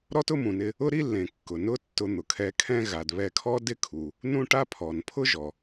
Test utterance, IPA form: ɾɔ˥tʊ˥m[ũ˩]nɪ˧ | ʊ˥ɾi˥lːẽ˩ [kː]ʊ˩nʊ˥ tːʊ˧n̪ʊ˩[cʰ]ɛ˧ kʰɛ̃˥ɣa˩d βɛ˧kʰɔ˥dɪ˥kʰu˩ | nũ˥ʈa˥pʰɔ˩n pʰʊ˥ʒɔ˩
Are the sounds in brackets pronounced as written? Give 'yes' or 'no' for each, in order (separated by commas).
yes, yes, no